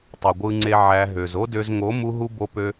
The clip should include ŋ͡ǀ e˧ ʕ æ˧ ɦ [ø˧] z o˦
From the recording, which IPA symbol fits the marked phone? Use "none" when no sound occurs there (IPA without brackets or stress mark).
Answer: ø˨